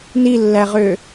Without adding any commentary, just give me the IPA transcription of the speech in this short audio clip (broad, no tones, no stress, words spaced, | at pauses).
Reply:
nilːæʁø